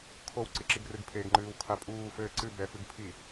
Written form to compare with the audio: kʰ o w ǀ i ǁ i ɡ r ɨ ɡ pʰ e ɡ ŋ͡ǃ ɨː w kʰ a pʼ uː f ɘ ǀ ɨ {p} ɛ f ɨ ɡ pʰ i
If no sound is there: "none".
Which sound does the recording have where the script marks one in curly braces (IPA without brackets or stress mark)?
b